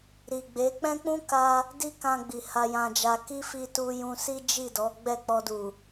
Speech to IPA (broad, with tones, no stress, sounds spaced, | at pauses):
ɾ i˨ ɡ͡b e˨˦ k͡p ɛ̃˦ k͡p ũ˦ k a˧ | d i˦ k ã˧ ɡ͡b i˨ h a˧ j ã˧ d͡ʒ a˧ k i˦ f i˧ t u˧ j ũ˧ s i˦ d͡ʒ i˦˨ d ɔ˨˦ ɡ͡b ɛ˦˨ k͡p ɔ˧ d u˨